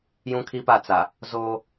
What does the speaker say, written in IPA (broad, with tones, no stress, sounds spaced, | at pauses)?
j ũ˦ kʰ i˦ p a˦˨ t͡s a˨ | z oː˦